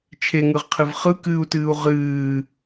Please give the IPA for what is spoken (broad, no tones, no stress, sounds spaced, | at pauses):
t͡ʃʰ e ŋ ɯ ʁ qʰ ɨ v χ ɯ k ɨː u̯ t ɨː u̯ ʁ ɨː